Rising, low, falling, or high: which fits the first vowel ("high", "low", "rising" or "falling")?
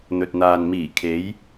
low